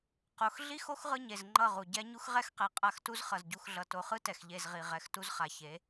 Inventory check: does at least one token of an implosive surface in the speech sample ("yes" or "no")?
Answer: no